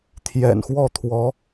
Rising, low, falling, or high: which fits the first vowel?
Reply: low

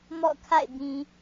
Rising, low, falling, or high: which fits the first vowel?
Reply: falling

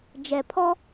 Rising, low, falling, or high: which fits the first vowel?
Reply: low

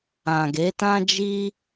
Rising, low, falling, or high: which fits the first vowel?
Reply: low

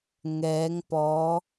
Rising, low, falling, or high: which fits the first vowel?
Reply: rising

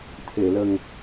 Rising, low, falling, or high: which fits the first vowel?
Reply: low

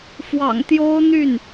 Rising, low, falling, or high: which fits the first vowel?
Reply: low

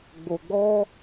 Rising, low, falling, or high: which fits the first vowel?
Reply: low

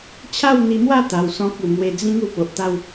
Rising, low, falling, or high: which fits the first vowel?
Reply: falling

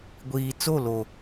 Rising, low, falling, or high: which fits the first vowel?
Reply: low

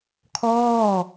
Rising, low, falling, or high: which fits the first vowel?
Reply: falling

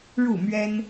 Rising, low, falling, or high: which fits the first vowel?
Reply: falling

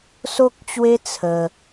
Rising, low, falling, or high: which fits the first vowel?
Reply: high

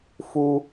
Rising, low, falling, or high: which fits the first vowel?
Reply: high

